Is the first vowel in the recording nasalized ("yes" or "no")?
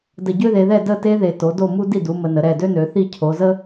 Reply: no